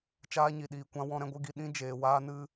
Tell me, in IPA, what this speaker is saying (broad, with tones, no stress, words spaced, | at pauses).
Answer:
t͡ʃaː˧ɲi˨ɗiː˨kʷã˧ wɔ̃˧ɾɛ̃˧ɡʷɨ˧ɡi˧ ɗĩ˦d͡ʒeː˧ waː˦nɨ˦